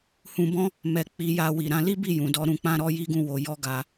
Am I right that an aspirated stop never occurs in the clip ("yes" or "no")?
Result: yes